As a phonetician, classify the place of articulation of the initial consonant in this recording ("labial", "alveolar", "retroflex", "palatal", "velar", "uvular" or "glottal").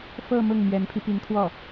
labial